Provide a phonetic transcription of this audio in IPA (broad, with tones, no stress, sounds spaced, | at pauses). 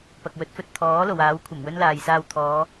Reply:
p ɐ˨ k̚ w ɵ˨˥ t̚ f ɵ˨ t̚ t̪ʰ ɔː˨˥ l o˨˩ w aː˨˥ w kʷʰ ɐ˨˩ m w ɵ˥ n l aː˨ j s aː˧ w t̪ʰ ɔː˨˧